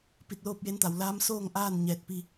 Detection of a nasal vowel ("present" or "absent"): absent